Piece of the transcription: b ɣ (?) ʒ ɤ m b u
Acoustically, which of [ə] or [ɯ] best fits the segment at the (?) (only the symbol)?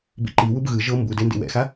ɯ